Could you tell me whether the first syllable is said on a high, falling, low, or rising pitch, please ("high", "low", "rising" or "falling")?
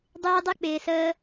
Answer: high